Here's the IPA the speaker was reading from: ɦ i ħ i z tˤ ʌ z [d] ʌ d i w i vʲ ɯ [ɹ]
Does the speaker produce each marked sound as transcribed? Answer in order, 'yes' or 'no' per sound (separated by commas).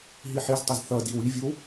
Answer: no, no